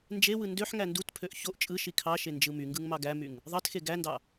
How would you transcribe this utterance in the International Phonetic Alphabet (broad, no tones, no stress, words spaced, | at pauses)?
nd͡ʒewɯ ndøħ ŋændutpʰøʔ çoʔ t͡ʃʼɯʃi kʰɑʃe nd͡ʒɯmyŋɡɯŋ mɑɡæmyŋ | ðˤɑtxe ɡændɑ